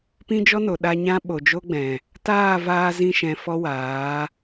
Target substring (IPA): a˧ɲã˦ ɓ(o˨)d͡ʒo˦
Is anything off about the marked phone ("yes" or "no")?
no